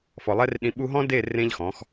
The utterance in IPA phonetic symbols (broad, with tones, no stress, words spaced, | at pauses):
fɔ˨lˠɛ˦rɗĩ˧ ɓu˧ɦɔ̃˦de˦˨ rẽ˦ʎxɔ̃˨˦x